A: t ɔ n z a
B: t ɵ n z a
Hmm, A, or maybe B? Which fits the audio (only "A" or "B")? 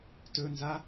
B